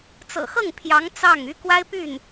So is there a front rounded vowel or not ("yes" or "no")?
yes